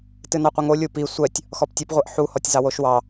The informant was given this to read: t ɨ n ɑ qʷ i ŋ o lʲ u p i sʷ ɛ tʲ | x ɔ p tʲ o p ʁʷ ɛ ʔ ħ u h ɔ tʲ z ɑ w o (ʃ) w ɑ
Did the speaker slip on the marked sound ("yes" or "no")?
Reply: no